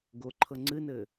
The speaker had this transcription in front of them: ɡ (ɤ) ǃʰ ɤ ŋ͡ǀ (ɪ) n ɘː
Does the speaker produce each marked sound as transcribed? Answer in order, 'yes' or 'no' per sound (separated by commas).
no, no